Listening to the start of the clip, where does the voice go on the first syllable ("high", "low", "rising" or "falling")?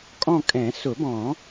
falling